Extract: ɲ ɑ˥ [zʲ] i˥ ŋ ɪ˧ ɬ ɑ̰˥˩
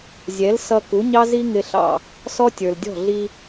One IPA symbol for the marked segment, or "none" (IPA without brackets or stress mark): z